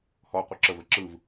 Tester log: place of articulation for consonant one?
glottal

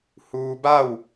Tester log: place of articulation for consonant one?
glottal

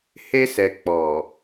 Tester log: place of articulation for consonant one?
glottal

